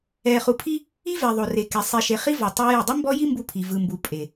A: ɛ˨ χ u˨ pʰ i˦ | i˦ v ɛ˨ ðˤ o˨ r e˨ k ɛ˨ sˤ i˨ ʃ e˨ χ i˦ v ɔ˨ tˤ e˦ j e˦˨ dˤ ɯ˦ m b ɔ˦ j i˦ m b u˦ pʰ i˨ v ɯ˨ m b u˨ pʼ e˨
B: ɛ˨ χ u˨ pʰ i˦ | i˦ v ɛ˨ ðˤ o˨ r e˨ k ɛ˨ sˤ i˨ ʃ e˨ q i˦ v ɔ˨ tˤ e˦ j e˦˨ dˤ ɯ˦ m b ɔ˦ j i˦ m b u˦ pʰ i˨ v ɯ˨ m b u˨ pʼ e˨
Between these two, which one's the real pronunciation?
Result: A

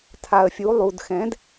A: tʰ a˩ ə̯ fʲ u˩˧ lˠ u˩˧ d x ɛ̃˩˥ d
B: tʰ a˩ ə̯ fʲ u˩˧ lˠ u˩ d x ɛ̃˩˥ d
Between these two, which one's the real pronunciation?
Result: B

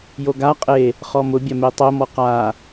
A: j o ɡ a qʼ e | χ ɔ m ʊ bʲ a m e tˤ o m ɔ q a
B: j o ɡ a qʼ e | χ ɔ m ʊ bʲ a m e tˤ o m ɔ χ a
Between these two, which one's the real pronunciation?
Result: A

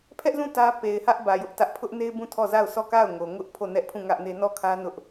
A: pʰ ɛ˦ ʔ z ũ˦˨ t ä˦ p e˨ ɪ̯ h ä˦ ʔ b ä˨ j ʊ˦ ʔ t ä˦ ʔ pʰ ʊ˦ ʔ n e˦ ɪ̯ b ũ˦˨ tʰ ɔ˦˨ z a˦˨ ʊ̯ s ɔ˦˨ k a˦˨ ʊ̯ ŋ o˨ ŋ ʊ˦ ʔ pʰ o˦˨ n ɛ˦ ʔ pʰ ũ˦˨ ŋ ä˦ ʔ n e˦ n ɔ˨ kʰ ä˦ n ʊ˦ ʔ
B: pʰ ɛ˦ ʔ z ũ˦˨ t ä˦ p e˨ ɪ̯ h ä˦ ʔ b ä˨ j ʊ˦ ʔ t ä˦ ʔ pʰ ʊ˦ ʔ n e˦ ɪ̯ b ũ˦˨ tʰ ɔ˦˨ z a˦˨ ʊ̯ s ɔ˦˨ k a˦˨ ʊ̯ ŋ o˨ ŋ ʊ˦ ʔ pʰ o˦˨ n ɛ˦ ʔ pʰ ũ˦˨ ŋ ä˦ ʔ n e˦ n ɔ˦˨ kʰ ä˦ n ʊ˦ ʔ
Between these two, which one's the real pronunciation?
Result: B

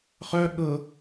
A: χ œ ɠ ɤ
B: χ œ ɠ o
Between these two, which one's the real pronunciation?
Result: A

